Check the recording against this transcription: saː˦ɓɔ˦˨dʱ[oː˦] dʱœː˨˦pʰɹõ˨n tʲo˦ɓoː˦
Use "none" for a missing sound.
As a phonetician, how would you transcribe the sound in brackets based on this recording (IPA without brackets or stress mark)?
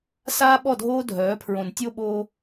oː˦